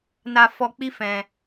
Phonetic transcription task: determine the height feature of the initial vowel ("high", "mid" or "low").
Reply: low